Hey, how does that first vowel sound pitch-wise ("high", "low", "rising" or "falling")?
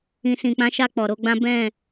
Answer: low